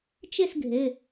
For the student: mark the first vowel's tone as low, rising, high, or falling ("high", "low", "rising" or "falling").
falling